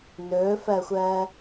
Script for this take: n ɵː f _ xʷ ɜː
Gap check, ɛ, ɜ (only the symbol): ɜ